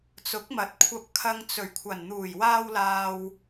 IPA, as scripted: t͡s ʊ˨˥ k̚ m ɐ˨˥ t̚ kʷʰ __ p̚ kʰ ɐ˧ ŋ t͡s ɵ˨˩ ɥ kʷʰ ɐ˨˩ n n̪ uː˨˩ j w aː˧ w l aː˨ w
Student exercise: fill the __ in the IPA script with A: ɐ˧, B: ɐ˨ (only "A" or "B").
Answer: A